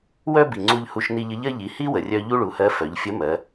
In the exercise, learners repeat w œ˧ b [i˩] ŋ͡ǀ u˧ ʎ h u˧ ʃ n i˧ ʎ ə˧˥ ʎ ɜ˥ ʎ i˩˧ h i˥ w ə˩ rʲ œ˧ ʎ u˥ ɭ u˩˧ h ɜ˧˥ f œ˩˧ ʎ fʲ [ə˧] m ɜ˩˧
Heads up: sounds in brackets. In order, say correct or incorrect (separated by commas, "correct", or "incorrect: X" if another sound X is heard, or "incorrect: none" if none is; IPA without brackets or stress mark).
correct, incorrect: ə˧˥